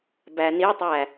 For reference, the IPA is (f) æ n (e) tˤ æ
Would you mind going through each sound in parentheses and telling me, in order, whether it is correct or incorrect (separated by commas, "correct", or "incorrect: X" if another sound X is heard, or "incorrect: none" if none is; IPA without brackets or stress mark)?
incorrect: b, incorrect: i